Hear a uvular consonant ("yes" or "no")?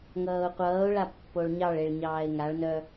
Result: yes